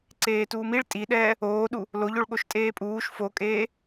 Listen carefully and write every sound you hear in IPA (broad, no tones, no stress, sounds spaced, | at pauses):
ǀ eː t uː m i ɭ tʼ i ɗ ɛː | oː ɗ u | l o ʎ o ɭ ɠ o ʃ tʼ eː pʼ uː ʃ f o kʼ eː